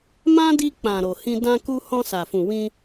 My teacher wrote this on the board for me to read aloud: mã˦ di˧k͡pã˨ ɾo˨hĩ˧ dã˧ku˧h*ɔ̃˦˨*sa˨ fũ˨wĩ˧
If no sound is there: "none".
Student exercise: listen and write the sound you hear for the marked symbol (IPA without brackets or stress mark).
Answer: ɔ̃˧